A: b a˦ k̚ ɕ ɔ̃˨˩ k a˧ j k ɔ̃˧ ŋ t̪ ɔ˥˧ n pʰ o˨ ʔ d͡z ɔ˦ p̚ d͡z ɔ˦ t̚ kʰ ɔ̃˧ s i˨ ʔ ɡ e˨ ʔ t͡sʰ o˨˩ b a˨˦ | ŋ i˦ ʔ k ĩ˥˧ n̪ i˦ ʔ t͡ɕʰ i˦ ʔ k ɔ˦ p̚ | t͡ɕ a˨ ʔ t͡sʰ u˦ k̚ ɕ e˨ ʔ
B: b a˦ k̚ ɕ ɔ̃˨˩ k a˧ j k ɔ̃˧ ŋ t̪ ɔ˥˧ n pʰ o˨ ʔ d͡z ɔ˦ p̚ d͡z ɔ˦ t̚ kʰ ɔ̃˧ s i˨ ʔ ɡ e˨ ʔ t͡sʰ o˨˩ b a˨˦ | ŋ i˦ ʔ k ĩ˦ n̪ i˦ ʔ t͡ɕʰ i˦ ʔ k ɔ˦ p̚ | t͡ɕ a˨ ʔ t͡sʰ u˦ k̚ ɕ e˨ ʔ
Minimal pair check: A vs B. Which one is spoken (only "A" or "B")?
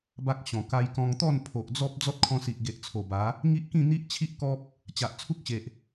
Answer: A